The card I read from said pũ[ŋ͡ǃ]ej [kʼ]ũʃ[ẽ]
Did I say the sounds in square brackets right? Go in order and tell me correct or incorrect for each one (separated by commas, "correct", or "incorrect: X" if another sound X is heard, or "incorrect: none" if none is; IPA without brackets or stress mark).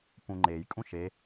correct, correct, incorrect: e